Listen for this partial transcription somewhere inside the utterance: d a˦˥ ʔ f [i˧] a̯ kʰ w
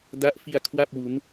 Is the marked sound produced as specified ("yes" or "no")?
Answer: yes